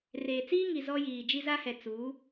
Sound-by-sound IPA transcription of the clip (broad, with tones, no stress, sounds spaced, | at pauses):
r eː˨ t͡s iː˦ ŋ i˨ z ɔ˦ j iː˨ d͡ʒ i˦ z a˦ h ɛ˨ t͡s uː˨˦